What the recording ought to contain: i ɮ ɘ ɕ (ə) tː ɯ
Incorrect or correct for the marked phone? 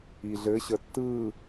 correct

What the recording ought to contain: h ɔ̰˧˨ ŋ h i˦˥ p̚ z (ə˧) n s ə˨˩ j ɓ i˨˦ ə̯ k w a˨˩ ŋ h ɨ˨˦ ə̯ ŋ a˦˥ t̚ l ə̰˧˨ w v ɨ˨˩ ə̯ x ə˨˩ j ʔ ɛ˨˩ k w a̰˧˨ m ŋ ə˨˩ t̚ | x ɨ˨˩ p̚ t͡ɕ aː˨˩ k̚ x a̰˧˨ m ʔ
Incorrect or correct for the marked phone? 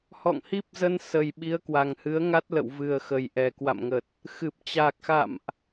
correct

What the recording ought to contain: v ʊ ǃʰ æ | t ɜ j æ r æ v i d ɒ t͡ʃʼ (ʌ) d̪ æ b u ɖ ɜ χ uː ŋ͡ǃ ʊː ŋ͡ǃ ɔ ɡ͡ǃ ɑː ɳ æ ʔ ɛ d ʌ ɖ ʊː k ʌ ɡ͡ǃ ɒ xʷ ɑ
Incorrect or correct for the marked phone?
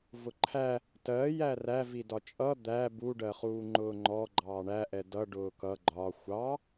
correct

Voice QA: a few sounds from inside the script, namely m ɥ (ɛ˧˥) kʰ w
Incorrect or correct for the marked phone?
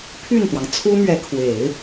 correct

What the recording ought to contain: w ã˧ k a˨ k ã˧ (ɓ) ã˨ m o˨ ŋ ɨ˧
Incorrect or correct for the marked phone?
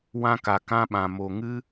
correct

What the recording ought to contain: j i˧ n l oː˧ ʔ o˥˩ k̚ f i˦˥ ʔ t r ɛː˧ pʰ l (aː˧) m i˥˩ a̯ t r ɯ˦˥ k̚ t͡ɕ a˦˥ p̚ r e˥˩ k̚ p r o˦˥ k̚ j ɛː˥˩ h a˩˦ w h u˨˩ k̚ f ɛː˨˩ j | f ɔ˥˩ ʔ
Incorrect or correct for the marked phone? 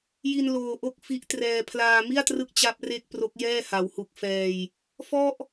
correct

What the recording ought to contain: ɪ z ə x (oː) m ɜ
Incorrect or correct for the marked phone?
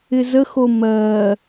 incorrect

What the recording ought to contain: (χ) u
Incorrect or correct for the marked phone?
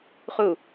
correct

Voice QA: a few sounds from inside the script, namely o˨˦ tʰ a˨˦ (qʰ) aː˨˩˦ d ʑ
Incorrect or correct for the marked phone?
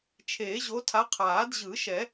correct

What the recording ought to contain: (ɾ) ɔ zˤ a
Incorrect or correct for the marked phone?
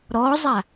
correct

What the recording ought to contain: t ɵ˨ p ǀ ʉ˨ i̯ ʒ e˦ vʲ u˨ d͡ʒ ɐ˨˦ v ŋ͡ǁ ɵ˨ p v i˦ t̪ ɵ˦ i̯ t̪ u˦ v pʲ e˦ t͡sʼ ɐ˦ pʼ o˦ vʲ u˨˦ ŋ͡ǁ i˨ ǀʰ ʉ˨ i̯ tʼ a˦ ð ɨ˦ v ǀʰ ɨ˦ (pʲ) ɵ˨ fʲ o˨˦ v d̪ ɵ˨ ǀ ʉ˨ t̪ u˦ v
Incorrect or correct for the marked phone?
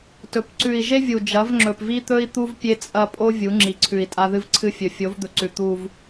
incorrect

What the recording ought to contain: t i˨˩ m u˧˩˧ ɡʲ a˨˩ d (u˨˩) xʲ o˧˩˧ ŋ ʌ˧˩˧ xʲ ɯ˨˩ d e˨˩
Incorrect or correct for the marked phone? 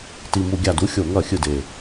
incorrect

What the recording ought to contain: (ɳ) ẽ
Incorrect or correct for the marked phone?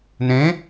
incorrect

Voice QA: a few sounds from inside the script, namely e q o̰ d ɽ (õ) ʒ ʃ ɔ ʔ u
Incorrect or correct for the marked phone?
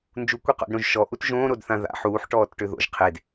correct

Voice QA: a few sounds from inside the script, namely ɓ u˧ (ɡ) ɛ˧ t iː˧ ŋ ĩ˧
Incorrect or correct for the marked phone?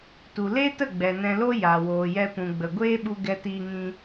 correct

